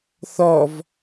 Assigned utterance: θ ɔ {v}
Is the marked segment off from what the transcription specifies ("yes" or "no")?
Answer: no